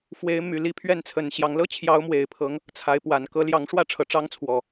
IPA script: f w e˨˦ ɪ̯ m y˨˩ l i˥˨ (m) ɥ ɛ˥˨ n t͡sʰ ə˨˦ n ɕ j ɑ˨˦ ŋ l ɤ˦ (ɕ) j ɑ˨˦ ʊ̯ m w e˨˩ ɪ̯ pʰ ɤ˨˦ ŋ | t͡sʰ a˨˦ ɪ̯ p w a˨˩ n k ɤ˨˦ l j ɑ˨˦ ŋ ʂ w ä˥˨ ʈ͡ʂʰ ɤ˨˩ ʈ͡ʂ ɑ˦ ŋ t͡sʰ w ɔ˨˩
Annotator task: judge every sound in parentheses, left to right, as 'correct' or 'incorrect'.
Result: incorrect: pʰ, incorrect: t͡ɕʰ

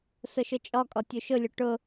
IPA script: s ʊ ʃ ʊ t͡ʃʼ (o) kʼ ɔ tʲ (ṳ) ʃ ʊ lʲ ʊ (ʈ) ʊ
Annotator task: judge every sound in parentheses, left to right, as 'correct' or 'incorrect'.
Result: incorrect: ɔ, incorrect: u, correct

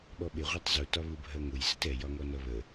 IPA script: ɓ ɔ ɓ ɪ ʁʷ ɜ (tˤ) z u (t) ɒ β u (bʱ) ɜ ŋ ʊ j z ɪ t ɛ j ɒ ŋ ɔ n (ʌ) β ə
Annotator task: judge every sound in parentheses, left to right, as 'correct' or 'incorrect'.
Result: correct, correct, correct, correct

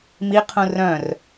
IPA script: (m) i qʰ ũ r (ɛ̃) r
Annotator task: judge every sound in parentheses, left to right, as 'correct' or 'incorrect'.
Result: correct, incorrect: œ̃

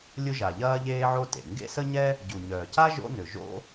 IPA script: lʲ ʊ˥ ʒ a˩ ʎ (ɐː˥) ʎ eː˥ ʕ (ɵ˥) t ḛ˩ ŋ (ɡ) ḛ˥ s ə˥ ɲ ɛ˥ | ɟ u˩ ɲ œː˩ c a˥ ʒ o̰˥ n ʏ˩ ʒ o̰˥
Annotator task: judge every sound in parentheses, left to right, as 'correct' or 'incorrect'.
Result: correct, incorrect: o˥, correct

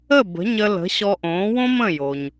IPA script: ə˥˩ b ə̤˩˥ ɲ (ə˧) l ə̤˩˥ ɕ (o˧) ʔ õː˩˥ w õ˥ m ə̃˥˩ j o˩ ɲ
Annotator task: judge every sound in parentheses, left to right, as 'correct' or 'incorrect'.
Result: correct, incorrect: ɔ˧

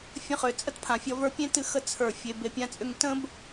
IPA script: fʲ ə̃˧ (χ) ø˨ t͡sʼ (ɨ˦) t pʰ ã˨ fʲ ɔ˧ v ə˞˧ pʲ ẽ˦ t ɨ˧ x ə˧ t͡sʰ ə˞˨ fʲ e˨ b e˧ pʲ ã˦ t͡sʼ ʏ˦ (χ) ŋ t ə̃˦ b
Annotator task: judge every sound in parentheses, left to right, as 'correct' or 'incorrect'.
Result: correct, incorrect: ə˦, incorrect: none

